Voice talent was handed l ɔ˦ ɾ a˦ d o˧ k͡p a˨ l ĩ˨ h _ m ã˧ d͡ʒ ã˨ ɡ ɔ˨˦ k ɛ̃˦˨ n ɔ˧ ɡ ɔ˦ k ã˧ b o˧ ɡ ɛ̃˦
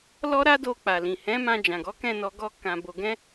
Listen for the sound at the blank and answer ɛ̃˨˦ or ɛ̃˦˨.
ɛ̃˨˦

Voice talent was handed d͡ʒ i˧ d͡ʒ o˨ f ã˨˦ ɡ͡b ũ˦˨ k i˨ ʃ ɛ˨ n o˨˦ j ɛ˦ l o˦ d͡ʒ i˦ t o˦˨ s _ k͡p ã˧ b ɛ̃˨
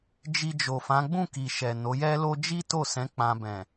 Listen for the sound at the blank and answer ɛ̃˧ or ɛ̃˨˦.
ɛ̃˨˦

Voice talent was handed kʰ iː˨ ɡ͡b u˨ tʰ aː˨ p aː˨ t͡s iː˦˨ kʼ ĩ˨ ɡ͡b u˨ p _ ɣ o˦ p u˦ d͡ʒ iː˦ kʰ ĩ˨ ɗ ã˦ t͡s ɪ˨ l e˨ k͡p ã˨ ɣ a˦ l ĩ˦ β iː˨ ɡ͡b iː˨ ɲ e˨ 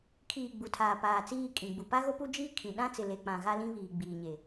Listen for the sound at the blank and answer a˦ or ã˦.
a˦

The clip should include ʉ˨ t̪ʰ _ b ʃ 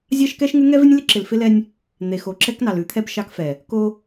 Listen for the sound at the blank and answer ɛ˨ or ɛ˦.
ɛ˦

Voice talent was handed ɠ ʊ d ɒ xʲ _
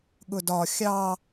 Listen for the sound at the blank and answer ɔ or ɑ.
ɑ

